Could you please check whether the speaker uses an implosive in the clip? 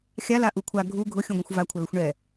no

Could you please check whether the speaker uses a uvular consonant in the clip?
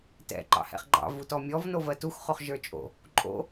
yes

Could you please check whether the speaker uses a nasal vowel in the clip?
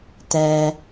no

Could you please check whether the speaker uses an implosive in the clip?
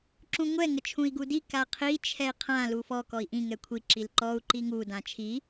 no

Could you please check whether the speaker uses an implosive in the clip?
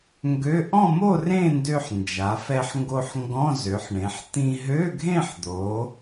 no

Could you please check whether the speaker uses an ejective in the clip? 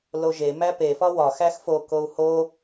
no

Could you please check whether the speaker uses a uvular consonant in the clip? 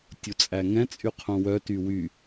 yes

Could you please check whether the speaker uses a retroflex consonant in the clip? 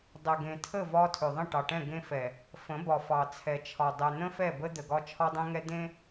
yes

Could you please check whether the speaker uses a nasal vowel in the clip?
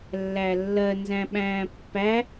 yes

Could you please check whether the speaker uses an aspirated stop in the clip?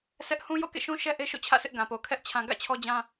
yes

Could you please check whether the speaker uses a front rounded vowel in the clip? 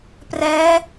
no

